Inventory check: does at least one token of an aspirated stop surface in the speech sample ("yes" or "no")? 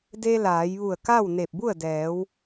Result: no